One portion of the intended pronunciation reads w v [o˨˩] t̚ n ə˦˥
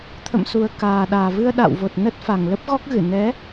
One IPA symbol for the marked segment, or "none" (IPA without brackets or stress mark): o˨˩